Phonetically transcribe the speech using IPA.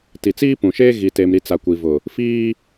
ti˨t͡siː˦pũ˨ʃeː˦ ɣi˨te˨mɾi˨ t͡sa˨ kʷi˨vʊ˨ | fiː˦

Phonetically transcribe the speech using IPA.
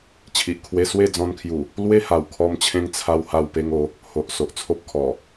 t͡ɕʰi˨ʔkʰwe˧ swe˥˧ d͡zɔ̃˧nkʰju˨˩ | lwe˦ha˨˩wkʰɔ˧mt͡ɕʰẽ˧ŋ t͡sʰa˧wha˧wpe˧ŋo˨˦ | ho˨ʔ so˨ʔt͡sʰo˦p̚kʰɔ˨˩

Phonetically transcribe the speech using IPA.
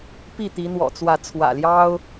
pi˥˨t̪i˨˦n̪wɔ̰˨˩t͡swä˨˦ t͡sʰwä̰˨˩ljɑ˦ʊ̯

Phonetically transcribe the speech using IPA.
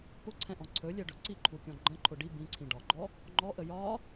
pʊǀʰɛ̃ʔɔ̃ ǀʰɵlʲɛɖɵ ǀiǃʰukʲɔ̃ ɡ͡ǃə̃ǃʰʊ ɖi bĩǀʰĩ ɖɒɡ͡ǃɔ | ŋ͡ǃɔʔə jɒ

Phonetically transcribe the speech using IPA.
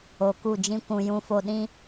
o˨ku˦˨d͡ʒĩ˦kʷũ˧ jũ˧fo˧ ɗĩ˦

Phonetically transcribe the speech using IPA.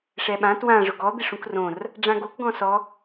ʂɛɓã twã ʐʊɡɔ d̪ɪʂũkrõr | ɖ͡ʐãɡok ɡɔ̃sɔ

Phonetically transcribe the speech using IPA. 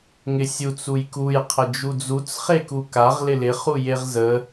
ŋɪsʲut͡s ujkuj qʰəd͡ʒud͡zut͡s χekukaʁ lɪlɪ χujeʁzə

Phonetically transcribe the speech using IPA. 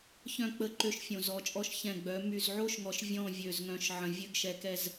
çœ̃˦˨k͡pə˦˨ ǃø˦ʃfʲõ˨zɔ˨˦t͡ʃʼɔ˦ʃ çɛ̃˦˨ɡ͡bœ˨˦ my˨zʕo˦ʃŋɔ˨ʃ vʲɔ̃˦˨ vʲø˨zŋœ̃˨ʃ ʕə̃˨vʲø˦ɡʃɛ˨kɛ˨z

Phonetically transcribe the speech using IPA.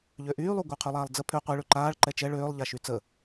ʎøʔyːlˠuɡʷœ qʰylˠaːlˠd͡zə pʰø qʷeɭø ǃaːɭ ǃɛt͡ʃɛ ɭøːlˠʎaʃy t͡sə

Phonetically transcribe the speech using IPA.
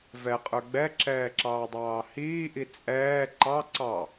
vɛqʼə˞ ɡ͡bɛǁɛːǁɑːdˤɑː hiːʔi t͡sʼɛː ǃɑ ǀɑ

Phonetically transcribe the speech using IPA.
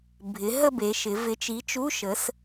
bʱɪ˩˧ ɦə˥˧be˩˧ʃɪ˩˧ vɪ˨˥t͡ʃi˨˥t͡ʃu˧˥˧ ʃə˩˧s

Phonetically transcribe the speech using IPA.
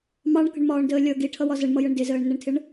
mɑɳkə̤ɳmɒːɳdəː lʲʌ ɡiʈʰʌwɒ zəɳmʌjəɳ dɪzəːɳnəɳtʰɪɳ

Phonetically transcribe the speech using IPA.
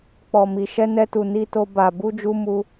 k͡pɔ˨mi˨ ʃɛ˧nɛ˧tu˨ ni˧to˧ ba˨ bu˧d͡ʒu˧mu˧

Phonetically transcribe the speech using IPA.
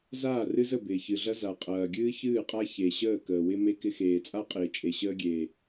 zaː˦˨rɨ˦zə˦˨ bɪː˨çɨ˨ɮɐ˦ za˨qʼɐː˨ ɡʲɨː˦çɨː˦˨qʼa˦ çe˨ ɕəː˦˨kəː˨wɪ˦ me˦kɪ˦ xeː˨t͡sʼa˦qʼɪː˨ t͡ʃʼe˨ɕəː˦ɡʲeː˨

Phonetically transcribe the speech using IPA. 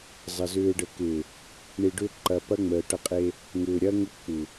zˤə˨ zʏː˨ɖə˨kɪː˨ | ɳi˨ɖʏ˦ ǃɐ˨ pɐ˦ŋ͡məː˨ʈɐ˦qʼe˦ | ŋʏː˨ ɾʲɐ˦ŋʊ˦k͡pu˨

